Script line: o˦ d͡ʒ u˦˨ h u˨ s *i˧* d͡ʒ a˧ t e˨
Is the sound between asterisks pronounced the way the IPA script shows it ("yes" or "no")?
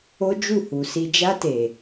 yes